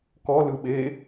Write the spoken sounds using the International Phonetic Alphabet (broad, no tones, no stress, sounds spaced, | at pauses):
k ɔ l ɯ ɓ e